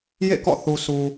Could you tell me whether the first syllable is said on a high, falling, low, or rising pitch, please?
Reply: falling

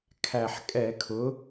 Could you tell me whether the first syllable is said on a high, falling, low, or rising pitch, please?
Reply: low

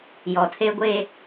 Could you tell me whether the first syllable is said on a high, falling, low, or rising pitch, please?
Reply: low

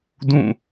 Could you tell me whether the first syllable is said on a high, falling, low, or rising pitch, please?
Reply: falling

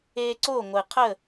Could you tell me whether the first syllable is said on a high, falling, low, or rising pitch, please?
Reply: high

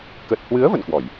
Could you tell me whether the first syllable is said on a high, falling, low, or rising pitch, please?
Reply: low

